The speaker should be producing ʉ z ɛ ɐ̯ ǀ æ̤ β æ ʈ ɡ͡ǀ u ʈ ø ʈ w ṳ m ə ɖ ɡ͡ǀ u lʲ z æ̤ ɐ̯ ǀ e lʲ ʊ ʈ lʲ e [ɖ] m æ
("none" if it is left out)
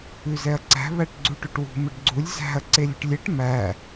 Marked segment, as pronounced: ʈ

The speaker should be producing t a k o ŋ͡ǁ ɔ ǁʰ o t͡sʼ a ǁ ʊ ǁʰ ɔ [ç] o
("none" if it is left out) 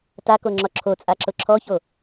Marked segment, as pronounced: ç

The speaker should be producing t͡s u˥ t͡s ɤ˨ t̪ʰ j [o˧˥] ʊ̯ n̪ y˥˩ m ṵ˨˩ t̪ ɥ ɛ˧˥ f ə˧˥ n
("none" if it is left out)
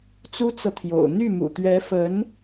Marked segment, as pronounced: o̰˨˩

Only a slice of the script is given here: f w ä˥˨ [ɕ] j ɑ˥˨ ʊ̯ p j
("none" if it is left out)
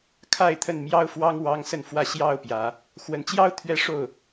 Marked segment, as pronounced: ɕ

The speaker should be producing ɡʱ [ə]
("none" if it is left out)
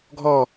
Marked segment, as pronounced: ɔ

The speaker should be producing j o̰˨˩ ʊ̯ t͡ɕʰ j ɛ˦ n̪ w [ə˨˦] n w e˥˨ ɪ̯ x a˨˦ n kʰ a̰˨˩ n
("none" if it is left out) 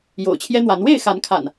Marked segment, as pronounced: a˨˦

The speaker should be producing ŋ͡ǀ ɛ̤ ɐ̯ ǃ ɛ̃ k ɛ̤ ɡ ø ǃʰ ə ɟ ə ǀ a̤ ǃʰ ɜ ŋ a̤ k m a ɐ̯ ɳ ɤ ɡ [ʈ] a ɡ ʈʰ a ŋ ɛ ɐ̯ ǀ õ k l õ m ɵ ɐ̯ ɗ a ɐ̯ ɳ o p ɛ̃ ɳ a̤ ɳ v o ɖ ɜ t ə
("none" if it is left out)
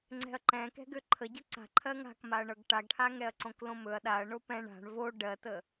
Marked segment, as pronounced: ʈ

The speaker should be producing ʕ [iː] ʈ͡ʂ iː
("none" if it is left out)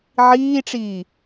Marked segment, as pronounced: iː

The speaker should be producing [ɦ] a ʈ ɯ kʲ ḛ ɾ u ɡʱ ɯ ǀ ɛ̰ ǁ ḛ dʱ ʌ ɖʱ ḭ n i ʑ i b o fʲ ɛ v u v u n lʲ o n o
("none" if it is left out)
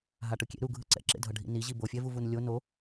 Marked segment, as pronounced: ɦ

